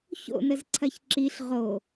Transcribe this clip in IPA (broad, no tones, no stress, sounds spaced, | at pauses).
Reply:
ç o̰ n ə z ǀʰ ɐ ç ǁ i ɬ ʁ o